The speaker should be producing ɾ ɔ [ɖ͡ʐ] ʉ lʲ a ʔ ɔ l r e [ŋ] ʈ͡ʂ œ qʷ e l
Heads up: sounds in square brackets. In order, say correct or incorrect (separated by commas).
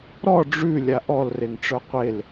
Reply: correct, correct